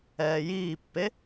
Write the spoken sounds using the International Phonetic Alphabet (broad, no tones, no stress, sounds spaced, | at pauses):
ɛː j iː pː e